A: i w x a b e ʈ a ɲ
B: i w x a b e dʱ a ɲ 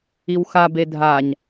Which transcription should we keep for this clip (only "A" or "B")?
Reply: B